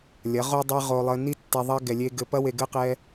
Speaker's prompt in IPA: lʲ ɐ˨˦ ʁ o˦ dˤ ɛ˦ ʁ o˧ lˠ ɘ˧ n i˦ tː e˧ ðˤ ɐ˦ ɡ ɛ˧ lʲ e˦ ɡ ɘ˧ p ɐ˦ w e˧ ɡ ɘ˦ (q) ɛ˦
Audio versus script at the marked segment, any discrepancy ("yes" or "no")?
no